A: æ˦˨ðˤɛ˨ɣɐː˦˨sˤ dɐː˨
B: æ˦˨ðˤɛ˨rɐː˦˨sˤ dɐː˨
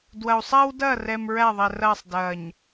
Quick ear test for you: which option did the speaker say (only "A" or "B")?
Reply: B